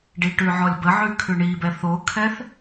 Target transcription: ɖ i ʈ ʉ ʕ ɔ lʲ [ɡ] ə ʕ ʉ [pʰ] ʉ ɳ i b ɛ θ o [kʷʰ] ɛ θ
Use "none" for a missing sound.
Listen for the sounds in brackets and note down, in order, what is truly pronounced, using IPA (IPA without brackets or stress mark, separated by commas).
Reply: b, kʰ, kʰ